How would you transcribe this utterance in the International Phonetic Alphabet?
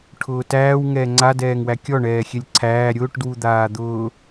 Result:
ʈʰ ʊː t æː w ŋ ɛː ŋ͡ǀ a d ɛː ŋ w æ kʲ ɔ ɳ ɛː xʲ ɛ lʲ ǀʰ æː ɾʲ ʊː ʈ d w u d̪ aː d̪ ʊː

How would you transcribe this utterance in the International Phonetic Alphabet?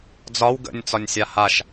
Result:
d͡z ɒ w ɡ ə̰ nʲ t͡s ɒ nʲ sʲ a h a ʃ

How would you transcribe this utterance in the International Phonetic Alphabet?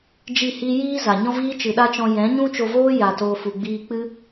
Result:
d͡ʒ i˦˨ h i˦ j iː˦ z a˨ ɲ ɔ̃˦ v iː˦ t͡ʃ ɨ˨ ɗ a˦ t͡ʃ ɔ̃˧ j ɛ̃˨˦ ɲ ũ˦ t͡ʃ o˧ v oː˦ j a˨ t oː˨ f u˨ ɡ͡b iː˧ k͡p ɨ˦

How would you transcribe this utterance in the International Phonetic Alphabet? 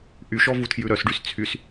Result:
ʔ y ʃ ɔ v u tʰ j ʉ ɾ œ s ɖ y s t͡sʰ y s

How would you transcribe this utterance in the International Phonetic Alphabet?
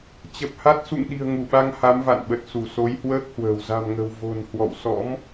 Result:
t͡ɕ ə˨˩ p̚ h a˦˥ t̚ s ṵ˧˨ ŋ ɗ i̤˨˩ ə̯ ŋ u˧˩ ɓ a˧ ŋ h a˨˦ m v a̰˧˨ n ɓ ə˨˩ t̚ s u˧˩ s o˨˦ j h w əː˦˥ k̚ h w ə̤ː˨˩ w z a̤˨˩ m ŋ ə̤˨˩ w v o̤˨˩ n h w ɔ̰˧˨ w s ɔ̰˧˥ m

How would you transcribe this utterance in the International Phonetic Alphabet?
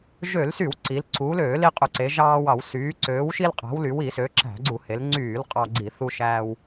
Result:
ʒ ø˧˩˧ l s y˧˩˧ w ǀ i˩˧ l ǀʰ uː˩˧ l øː˧˩˧ l i˧ qʼ ø˧˩˧ ǀ e˩˧ ʒ ɑː˧ w ɑ˧˩˧ w s yː˩˧ ǀ øː˩˧ w ʃ i˧ l qʼ æ̤˩˧ w l y˩˧ w i˧˩˧ s ø˩˧ ǁ æ̤˧˩˧ ɡ͡ǀ u˧˩˧ h e˩˧ l ŋ͡ǀ yː˧˩˧ l qʼ ɑ˧ ɡ͡ǀ i˧˩˧ θ u˧ ʃ æː˧ w

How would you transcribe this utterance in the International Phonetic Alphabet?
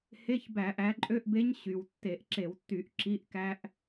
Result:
h e˧˥˧ ç b æ˧˩˧ ʔ æ˨˦ ǃʼ ø˧˥˧ ʔ b e˦˥ ɲ ɕ y˩ w tː e˧˩˧ ʔ ǁ e˧˩˧ w tː y˧˩˧ ʔ ǁ i˧˥˧ ʔ k æ˦˥ ʔ

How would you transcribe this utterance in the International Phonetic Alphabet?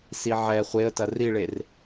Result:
s i ʕ ɛ χʷ e ə̯ t ɐ r i ɭ e r

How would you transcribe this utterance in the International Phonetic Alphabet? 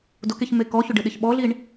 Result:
d ʊ k e ç m e k ɔ ç ʊ ɖ ɪ ɗ ɪ ç ɓ ɔ ɮ i ɳ

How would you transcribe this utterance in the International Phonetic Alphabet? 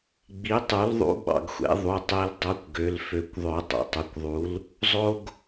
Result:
ɡ͡b i˩˥ tˤ u˩˥ l ðˤ ṵ˧˥ ɓ ɑ̰˩ ɡ xʷ ḛ˩˥ ðˤ u˩˧˩ tˤ e˧˥ l dˤ o˧˥ kʷ ɡ ø˩˧˩ l f ø˨˩˦ kʷ ðˤ ø˨˩˦ tˤ o̰˩ tˤ u˩ kʷ ðˤ u˩˥ l | zˤ o˥ ɡ

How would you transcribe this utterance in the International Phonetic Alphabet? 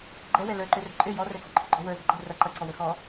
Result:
ɡ͡ǃ ɛ w ɛ l ə˞ ǃ ø r ɛ̤ ǃʼ ø j ɔ r ɛ ɡ ɔ̤ ǃʰ ə ɡ͡ǃ ɔ w ə˞ z ɛ̤ ǃ ɛ̤ r ɐ ǃ ɐ ǀ ɔ w ə x ɔ

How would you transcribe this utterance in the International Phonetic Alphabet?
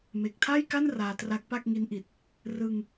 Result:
m e˨˩ k̚ tʰ a˥˩ j k a˥˩ n r aː˧ t r a˦˥ k̚ p a˥˩ k̚ ŋ i˦˥ n ʔ i˨˩ t̚ | r ɯ˧ ŋ

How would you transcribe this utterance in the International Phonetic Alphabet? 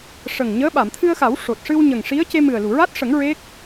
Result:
ʂ ə˨˩ ŋ ɲ əː˧˥ ɓ a˨˩˨ m t̪ʰ ɨ˧ ə̯ x a˨˩˦ w ʂ o˨˩ t̚ ʂ ɨ˧ w ɲ ə˨˩ ŋ ʂ i˧˥ ə̯ c e˧ m ɨ˨˩ ə̯ l u˨˩˨ ɹ a˦˥ t̚ ʂ ə˨˩˦ ŋ ɹ e˦˥ k̚

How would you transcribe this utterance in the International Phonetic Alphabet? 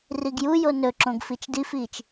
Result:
r i ɡ j u j o n ɵ ǁ õ ɡ f i t͡ʃ d i f iː t͡ʃ

